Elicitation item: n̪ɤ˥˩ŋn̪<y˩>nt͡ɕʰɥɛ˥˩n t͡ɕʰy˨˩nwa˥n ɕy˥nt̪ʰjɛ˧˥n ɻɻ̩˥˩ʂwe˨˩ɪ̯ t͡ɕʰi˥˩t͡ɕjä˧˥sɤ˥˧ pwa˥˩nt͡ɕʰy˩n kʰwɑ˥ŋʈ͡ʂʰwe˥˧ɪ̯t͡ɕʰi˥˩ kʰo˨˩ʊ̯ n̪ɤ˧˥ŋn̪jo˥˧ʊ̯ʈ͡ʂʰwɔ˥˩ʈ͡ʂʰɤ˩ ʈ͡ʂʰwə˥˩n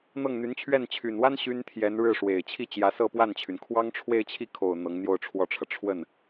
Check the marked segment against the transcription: incorrect: y˧˥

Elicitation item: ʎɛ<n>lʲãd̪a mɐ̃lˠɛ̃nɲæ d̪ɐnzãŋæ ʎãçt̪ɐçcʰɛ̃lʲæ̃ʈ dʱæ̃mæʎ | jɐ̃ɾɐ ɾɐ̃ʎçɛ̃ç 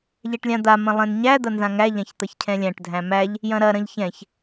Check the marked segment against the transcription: incorrect: ʈ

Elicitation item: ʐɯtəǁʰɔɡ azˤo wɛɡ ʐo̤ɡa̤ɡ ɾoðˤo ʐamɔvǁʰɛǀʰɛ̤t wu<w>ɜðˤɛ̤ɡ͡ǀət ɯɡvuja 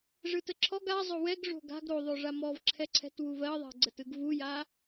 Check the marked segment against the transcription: incorrect: v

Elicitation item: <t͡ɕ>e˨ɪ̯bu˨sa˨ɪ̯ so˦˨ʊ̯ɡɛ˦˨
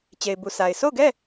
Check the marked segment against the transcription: correct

